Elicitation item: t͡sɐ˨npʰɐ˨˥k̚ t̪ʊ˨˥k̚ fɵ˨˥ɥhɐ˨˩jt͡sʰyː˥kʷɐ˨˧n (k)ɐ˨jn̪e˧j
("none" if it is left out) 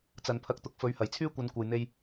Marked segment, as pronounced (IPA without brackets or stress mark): kʷ